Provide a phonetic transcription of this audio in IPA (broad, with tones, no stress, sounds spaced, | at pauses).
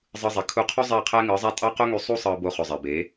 zˤ ɯ˧ zˤ i˨ kʰ u˧ qʰ u˦ zˤ eː˦˨ qʰ æː˦ ŋ ɯː˨˦ zˤ æ˦ tʼ ɑ˦ q o˦ ŋ y˧ sˤ u˧ sˤ ɯː˨ b o˧ χ ø˨ zˤ e˨ b e˨˦